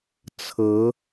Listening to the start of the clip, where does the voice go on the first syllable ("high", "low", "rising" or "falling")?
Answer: rising